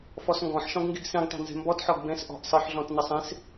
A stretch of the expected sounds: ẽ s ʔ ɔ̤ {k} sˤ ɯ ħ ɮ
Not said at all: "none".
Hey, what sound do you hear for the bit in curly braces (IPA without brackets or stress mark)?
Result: ʔ